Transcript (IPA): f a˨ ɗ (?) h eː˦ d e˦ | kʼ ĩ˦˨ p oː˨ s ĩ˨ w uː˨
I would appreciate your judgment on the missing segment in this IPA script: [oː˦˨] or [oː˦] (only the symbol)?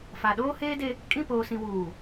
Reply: oː˦